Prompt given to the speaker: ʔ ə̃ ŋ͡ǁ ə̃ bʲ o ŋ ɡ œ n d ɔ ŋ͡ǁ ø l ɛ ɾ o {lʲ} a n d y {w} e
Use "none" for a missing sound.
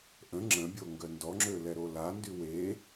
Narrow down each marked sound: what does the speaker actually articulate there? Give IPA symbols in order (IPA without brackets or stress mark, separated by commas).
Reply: l, w